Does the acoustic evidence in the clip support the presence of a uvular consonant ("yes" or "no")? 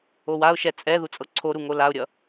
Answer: no